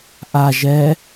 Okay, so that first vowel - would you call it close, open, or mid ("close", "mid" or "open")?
open